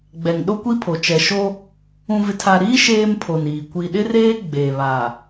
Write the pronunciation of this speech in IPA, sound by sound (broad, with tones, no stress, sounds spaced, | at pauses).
ɡ͡b ɛ˨ ŋ ɗ o˦ kʷ i˦ pʰ o˨ t͡ʃ ɛ˨ ʃ o˦ | ũ˨ v ɪ˨ tʰ a˨ ɾ iː˦ ʃ eː˦ m pʰ o˨ n iː˨ kʷ i˨ ɗ ɪ˦ r eː˦ ɡ͡b eː˨ β a˨